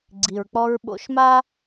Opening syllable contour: low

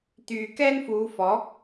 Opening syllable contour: low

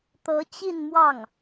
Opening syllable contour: rising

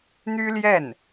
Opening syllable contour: high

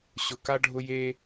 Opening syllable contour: high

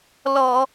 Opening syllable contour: low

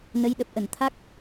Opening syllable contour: rising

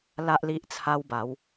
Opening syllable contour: high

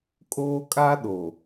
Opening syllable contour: high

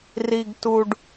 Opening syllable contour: low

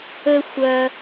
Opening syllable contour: low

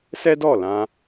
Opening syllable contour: high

